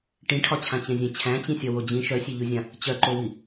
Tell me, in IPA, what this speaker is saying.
ʈĩʈʰɒt͡ɕʰãt͡ɕɛ̃ zʲɛ̃t͡ɕʰæ̃t͡ɕĩsʲɒ wod͡ʑĩ ʃœsʲeʎuzʲã | t͡ɕœǃowi

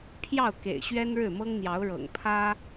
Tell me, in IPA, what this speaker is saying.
pʰjɑ˥˩ʊ̯kḛ˨˩ɪ̯ ɕɥɛ˥nɻɻ̩˥˩mɤ˥ŋn̪jɑ˧˥ʊ̯ ɻɤ̰˨˩ŋpʰä˥

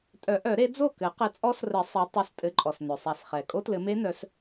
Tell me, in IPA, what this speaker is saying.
tʼœ˨˩˦ʔœ˨˩˦ɾe˨˦ d͡zo˥˩kɘ˨˩˦ qɘ˨˦t͡sʼɔ˦˥srɘ˨˩˦ sˤɛ˨˦ tˤœ˨˦stʼɘ˨˦ǃʼɔ˩s nœ˩sˤa˨˩˦sχɛ˩ kʼo˦˥tlɘ˨˦me˦˥nœ˨˦s

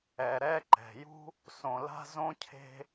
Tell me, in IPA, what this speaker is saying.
ɛ˨ɾɛ˦ ǃɛ̤˨jṳ˦ | sõ˨la̤˦zõ˦cʰe̤˦

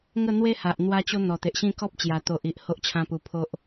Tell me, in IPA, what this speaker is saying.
ŋə˥˧ n̪we˦ha˨ʔ n̪wa˦t͡ɕo˦ n̪ɔ˨˩t̪e˨ʔɕĩ˥˧kɔ˦p̚ t͡ɕja˨˩t̪o˨ʔi˨ʔ ho˦ʔt͡ɕʰã˦pu˧ pʰo˦ʔ

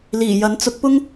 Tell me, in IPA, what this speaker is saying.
liː˨˩ jɐ˨˥nt͡sʊ˨˥k̚pʊ˥ŋ

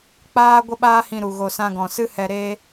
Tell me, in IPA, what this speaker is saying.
k͡paː˦ ɡʷə˦ɓaː˦hĩ˧ɾu˨ ɣo˧ sã˧ɡɔ̃˨sɨ˦hɛ˧ ɾe˦

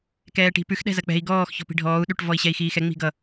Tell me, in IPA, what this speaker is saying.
kɛːʈi̤pʉx ɗɛ̤zɐk͡pɛ̤i̯ ɡɔːx çɔ̤pi̤ɖʱɔːu̯ ɗʉʈ vɔi̯ɕɛi̯xiːxɛ ŋ͡mi̤ɡʌ

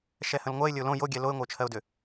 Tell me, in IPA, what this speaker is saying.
ʃɛhə̃lŋʷɜɪ̯ lʲəʊ̯lõ joɡʲɛ loɪ̯ŋʷəʊ̯t͡ʃʰɜʊ̯dʏ

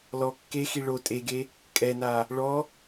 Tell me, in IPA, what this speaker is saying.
lɔ kːexi ɭo tʼeɡe | kʼɛna | ɭɔ

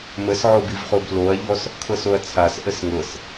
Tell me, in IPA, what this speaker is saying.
məsʕobivχob loɐ̯ʎɔs | kʰɤsoɐ̯t͡sʰas ʔəsŋɤs

